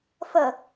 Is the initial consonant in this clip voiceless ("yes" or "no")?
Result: yes